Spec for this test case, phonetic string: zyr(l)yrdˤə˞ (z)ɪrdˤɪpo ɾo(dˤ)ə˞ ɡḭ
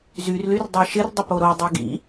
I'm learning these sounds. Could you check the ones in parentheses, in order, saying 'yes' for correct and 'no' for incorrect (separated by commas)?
yes, no, yes